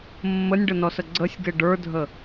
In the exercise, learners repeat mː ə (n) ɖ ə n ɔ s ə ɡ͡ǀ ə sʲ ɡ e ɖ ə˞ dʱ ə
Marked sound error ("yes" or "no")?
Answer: yes